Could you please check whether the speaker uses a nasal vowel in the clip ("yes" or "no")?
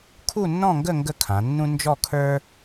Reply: yes